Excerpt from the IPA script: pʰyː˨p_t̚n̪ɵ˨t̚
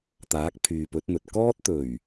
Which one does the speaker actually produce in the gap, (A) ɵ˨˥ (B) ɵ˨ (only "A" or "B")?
A